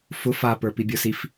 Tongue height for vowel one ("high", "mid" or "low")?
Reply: high